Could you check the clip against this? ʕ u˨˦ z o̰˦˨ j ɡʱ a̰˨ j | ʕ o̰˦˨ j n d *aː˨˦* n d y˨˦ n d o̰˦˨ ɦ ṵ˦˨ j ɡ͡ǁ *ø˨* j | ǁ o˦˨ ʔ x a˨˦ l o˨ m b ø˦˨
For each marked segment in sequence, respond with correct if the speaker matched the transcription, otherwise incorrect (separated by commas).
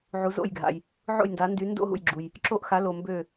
correct, incorrect